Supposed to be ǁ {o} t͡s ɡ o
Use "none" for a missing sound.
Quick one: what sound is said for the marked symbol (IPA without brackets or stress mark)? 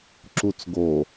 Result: u